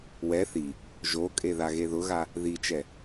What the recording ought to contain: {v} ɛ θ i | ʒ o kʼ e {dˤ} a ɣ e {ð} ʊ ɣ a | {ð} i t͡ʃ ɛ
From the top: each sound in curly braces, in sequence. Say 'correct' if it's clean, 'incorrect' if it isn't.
incorrect, incorrect, correct, correct

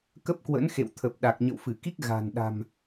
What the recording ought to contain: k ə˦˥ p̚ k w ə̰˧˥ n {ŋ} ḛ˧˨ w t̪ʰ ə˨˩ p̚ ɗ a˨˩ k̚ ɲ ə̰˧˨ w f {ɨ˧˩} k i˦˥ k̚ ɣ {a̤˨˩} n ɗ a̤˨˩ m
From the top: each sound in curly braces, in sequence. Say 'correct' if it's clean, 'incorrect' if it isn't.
incorrect, correct, correct

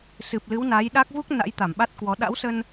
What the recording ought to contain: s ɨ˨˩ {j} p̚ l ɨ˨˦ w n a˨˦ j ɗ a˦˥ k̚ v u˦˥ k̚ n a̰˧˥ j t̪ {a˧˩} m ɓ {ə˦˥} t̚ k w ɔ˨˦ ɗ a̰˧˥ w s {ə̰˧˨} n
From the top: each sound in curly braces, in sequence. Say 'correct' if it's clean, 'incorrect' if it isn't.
incorrect, correct, incorrect, incorrect

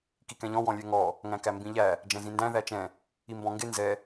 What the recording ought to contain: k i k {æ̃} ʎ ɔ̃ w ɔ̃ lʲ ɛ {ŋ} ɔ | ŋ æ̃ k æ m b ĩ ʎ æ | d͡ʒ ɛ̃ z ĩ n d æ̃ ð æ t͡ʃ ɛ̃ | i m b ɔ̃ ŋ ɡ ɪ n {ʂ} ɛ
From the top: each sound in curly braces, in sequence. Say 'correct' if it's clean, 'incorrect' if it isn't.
incorrect, correct, incorrect

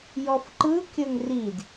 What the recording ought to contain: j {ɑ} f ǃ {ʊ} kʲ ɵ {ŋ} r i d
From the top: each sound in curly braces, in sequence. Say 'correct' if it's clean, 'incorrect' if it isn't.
incorrect, incorrect, correct

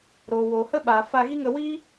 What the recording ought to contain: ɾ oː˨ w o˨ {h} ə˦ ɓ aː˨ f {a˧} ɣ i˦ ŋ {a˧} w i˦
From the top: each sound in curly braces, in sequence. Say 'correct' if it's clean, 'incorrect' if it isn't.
correct, correct, incorrect

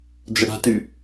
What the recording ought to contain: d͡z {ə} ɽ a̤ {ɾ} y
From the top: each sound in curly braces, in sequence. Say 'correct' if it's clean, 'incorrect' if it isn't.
correct, incorrect

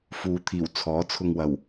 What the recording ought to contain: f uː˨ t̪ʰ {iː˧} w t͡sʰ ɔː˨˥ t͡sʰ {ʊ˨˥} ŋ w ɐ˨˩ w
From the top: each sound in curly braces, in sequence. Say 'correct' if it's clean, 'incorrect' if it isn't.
incorrect, incorrect

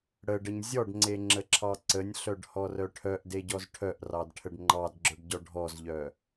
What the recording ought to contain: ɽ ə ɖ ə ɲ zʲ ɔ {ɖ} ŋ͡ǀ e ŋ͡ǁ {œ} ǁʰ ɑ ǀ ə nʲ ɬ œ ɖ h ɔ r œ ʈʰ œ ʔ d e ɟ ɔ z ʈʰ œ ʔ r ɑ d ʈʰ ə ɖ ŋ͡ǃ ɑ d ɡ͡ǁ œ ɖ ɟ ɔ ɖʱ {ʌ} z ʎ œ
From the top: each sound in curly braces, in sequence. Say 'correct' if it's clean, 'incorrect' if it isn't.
correct, incorrect, incorrect

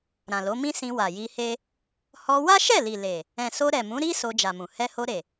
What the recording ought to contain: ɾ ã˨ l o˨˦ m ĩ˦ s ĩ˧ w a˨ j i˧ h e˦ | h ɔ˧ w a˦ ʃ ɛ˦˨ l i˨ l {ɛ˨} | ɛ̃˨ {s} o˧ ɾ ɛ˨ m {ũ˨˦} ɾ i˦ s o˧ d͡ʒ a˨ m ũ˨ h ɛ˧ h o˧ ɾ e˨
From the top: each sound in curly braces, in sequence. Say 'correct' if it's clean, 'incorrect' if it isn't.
incorrect, correct, correct

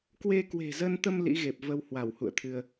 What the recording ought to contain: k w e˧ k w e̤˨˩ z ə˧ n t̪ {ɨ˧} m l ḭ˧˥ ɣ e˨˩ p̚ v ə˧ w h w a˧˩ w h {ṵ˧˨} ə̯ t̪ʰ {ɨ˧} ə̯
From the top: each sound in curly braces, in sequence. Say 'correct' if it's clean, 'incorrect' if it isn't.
incorrect, correct, correct

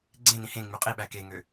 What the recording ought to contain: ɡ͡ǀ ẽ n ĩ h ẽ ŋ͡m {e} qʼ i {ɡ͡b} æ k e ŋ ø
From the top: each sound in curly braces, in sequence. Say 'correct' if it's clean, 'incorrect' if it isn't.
incorrect, incorrect

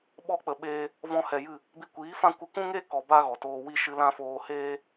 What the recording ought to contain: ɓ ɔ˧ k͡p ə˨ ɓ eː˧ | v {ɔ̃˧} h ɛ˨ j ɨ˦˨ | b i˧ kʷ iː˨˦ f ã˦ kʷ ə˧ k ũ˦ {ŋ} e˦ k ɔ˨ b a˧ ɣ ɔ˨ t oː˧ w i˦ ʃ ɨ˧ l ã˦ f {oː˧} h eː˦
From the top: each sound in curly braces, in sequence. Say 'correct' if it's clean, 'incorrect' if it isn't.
correct, correct, correct

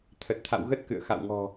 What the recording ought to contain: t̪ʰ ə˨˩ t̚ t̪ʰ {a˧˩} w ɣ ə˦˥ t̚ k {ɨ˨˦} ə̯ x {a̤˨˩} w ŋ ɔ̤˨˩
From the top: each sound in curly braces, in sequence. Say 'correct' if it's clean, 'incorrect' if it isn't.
incorrect, incorrect, incorrect

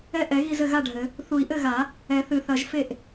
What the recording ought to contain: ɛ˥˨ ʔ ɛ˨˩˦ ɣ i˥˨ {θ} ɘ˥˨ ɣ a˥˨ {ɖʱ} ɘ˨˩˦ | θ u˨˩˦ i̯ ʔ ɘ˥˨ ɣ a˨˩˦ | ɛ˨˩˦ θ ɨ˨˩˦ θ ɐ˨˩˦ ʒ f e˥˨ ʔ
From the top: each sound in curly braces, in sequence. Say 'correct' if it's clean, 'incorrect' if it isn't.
incorrect, correct

